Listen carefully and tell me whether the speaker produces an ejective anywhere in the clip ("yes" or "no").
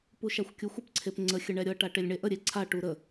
no